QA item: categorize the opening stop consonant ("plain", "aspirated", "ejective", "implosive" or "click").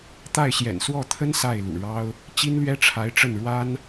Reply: plain